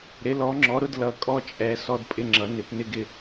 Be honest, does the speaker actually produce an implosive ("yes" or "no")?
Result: no